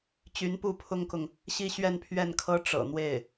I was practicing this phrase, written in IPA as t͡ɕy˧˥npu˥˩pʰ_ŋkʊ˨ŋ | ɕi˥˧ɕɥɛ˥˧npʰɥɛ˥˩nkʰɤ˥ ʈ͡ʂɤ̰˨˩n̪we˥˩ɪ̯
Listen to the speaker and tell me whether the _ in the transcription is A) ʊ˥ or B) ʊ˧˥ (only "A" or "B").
A